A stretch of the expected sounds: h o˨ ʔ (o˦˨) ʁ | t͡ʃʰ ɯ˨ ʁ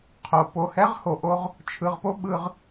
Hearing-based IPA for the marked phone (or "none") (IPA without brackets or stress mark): o˦